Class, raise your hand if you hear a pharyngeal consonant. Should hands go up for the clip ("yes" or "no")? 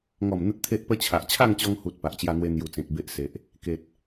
no